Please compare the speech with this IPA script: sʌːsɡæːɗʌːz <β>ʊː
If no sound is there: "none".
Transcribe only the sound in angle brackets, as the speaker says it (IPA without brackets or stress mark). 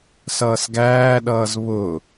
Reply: β